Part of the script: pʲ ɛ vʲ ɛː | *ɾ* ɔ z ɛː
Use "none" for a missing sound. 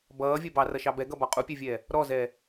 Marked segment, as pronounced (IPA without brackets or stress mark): ɾ